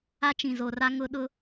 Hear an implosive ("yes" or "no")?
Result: yes